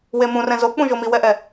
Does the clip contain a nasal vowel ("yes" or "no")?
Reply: yes